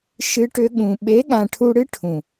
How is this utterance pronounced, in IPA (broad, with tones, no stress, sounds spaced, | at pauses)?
ʃ ɨ˧ ʈ ʏ˧ ɠ ũ˨ ɓ e˨˦ ɠ ã˨ ʈʰ u˧ ɽ ɨ˦ ʈʰ ũ˨